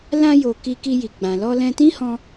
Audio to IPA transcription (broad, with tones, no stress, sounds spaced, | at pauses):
l ã˧ j o˨ k i˧ k i˧ j i˨ ɡ͡b ã˨ l ɔ˧ l ɛ̃˧ t ĩ˦ h ɔ̃˧